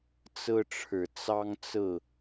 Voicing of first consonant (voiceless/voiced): voiceless